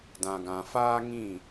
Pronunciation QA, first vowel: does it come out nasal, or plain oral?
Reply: nasal